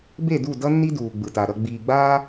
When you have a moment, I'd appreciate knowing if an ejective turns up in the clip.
no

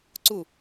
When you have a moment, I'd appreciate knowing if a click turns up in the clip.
yes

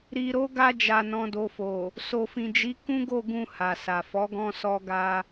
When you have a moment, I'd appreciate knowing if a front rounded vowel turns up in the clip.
no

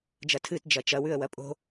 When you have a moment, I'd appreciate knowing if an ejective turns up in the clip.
yes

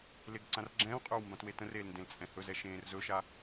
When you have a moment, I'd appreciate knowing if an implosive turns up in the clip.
no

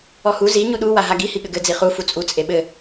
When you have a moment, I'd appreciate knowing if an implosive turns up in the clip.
yes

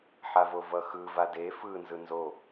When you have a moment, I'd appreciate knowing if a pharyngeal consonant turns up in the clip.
yes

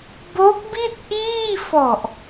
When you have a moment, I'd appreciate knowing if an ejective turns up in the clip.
no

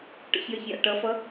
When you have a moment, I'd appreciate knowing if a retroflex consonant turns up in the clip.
yes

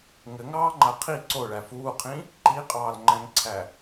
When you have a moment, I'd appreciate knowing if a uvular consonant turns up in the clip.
yes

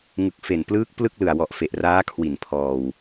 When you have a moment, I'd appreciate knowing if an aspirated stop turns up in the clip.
yes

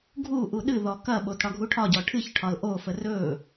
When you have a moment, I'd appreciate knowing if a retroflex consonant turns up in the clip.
yes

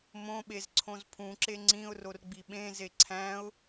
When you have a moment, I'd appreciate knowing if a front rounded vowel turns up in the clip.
no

